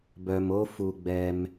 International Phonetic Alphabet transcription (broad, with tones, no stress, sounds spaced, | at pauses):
b œ˧ m o˦ f u˧ ɡ͡b ɛ˧ m